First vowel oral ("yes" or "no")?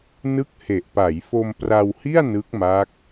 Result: yes